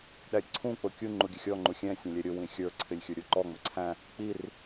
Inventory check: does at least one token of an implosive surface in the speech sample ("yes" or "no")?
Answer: yes